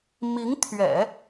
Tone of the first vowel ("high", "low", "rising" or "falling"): rising